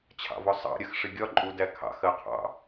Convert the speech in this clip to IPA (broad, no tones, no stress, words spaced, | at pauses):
t͡ɕʰɑ̰vɔsˤɑ̰ ɾʲɜxʂɪɡʲɒ ǃʼudækʰɑ̰x ɜqʰɑ̰